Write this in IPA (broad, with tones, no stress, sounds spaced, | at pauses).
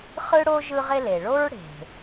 χ ɯ˥ ɽ o˥ ʒ ɯ˦ ʁ e˦ l e˩ ɭ o˥ ɹ ɽ e̤˩